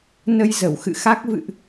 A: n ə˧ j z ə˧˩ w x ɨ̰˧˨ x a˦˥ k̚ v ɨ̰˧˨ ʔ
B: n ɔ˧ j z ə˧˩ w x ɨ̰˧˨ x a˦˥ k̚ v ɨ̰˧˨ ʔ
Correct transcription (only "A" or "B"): A